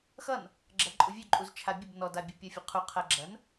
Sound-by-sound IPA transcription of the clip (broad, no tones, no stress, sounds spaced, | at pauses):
x ʌ n | ɡ͡ǁ ɐ ǃʼ u vʲ ø ǃʼ u z t͡ʃʰ a bʲ ə b n ɔ d a bʲ u pʲ ʌ fʲ ə qʰ u qʰ ɐ ɡ͡ǁ ɐ n